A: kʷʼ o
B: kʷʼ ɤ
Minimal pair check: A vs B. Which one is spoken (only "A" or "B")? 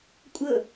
B